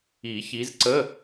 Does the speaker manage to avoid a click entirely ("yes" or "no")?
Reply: no